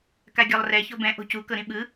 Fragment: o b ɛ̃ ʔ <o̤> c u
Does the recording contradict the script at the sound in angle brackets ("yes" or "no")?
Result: no